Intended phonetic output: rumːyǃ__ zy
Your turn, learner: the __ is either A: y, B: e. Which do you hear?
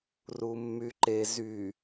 B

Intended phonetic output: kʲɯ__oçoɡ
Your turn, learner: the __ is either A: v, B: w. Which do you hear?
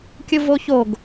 A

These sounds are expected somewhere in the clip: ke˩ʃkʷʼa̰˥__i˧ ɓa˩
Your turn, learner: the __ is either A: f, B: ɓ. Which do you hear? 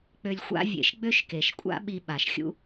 B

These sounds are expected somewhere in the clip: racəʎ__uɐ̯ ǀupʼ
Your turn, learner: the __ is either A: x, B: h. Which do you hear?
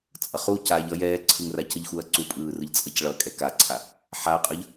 A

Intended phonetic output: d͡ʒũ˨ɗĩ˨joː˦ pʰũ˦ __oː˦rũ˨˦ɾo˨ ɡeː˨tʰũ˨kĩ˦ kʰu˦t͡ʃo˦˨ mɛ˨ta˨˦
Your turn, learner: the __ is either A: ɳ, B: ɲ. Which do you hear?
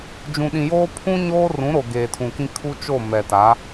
B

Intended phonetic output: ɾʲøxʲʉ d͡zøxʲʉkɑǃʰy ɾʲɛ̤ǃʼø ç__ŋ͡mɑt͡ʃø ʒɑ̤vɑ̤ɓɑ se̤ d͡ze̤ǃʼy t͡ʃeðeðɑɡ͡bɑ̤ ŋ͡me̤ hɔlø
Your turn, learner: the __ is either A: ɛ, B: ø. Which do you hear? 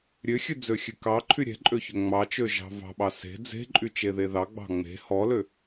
B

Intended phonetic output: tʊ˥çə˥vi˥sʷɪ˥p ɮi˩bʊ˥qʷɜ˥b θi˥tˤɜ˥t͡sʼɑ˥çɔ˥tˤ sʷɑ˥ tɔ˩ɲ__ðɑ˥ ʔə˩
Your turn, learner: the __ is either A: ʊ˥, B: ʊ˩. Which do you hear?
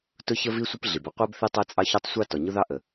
A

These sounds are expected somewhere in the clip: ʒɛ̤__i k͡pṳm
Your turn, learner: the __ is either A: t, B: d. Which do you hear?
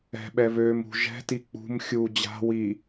A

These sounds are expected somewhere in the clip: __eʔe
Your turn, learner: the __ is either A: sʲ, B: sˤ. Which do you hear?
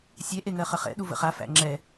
A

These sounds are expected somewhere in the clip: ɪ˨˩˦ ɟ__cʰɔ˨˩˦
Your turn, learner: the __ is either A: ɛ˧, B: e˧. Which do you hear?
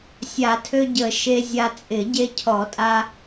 B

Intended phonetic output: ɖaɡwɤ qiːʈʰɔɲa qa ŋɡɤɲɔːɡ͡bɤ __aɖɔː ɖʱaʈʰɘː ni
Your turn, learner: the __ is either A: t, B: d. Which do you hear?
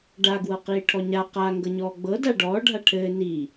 B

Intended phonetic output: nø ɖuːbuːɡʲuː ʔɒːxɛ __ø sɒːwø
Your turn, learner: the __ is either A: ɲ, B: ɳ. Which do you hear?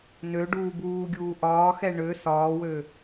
B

